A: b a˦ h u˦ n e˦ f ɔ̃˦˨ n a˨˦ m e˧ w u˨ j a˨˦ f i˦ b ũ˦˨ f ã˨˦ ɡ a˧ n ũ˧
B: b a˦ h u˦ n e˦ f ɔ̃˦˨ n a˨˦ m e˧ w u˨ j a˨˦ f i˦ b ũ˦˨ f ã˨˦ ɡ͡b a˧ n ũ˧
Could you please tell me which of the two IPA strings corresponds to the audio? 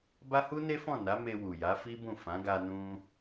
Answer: A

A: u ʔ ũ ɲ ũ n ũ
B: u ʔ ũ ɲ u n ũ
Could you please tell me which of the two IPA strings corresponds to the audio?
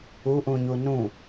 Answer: B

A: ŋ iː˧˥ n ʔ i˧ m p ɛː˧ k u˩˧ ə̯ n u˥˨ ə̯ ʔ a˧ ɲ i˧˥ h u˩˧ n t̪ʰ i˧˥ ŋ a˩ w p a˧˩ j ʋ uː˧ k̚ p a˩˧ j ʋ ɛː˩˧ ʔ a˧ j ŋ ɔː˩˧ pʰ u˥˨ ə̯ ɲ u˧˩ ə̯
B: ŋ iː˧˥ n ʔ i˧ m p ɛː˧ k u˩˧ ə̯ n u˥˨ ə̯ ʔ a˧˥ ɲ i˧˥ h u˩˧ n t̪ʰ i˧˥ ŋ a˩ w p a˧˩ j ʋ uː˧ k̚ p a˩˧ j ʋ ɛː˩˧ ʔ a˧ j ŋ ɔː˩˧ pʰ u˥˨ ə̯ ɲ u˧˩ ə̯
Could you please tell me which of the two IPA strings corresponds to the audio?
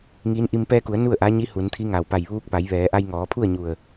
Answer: B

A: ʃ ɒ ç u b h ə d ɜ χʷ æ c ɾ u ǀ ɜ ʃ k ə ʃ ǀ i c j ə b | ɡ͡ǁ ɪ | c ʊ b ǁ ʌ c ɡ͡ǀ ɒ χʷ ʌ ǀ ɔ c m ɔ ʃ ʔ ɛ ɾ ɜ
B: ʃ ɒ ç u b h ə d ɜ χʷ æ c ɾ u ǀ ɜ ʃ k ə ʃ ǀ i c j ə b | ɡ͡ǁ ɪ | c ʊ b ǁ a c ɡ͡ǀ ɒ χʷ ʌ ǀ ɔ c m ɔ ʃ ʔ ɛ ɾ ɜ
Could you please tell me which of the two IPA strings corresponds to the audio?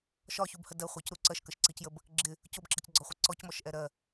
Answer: A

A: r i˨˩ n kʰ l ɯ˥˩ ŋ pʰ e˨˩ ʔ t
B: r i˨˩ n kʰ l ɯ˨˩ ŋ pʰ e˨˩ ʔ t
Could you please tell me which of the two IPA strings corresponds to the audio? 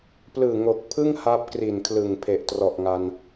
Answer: B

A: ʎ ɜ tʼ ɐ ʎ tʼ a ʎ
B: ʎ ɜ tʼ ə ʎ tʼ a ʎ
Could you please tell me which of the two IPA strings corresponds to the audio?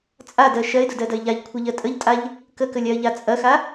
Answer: B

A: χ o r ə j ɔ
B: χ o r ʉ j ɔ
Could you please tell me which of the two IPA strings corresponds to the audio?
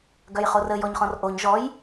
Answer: A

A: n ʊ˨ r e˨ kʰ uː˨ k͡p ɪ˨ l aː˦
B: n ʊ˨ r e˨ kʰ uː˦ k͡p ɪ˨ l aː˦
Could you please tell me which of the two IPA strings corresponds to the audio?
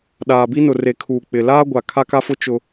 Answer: A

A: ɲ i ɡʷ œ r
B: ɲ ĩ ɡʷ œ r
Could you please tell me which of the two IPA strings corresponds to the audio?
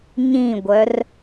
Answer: B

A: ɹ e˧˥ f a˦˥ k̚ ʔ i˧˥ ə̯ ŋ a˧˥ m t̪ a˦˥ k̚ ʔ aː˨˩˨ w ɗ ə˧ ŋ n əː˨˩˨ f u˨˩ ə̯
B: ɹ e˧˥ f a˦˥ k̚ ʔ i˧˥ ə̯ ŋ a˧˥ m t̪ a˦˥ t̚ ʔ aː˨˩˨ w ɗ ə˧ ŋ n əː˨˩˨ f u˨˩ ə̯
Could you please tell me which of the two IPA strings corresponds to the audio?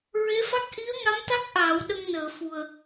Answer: A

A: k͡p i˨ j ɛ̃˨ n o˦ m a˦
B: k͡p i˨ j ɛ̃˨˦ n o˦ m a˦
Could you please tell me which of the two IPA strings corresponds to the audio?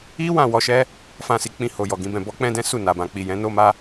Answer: B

